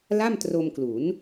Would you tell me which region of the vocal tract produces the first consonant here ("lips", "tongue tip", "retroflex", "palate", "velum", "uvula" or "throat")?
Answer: tongue tip